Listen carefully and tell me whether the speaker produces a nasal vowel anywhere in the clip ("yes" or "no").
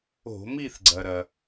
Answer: no